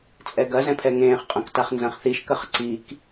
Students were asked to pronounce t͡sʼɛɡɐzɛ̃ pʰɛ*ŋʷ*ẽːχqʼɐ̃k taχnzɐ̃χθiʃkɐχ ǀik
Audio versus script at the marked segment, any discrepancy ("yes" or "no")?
yes